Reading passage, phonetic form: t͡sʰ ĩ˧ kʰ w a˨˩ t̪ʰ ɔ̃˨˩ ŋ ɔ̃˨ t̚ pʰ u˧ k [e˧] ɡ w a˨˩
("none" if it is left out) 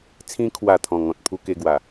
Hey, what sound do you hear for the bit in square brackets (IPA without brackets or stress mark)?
e˧